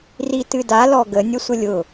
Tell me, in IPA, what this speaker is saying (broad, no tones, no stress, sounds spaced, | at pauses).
r i t ɨ d a l ɔ ɡ ə nʲ ə sʷ ə lʲ ʊ